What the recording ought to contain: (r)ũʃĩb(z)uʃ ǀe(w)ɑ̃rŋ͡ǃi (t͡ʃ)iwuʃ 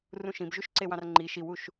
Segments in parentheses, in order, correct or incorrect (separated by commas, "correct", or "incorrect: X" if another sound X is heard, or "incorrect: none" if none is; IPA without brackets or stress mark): correct, incorrect: ʒ, correct, incorrect: ʃ